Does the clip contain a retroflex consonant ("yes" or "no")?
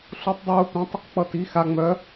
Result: no